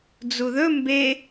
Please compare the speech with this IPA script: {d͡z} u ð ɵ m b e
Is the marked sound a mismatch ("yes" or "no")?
no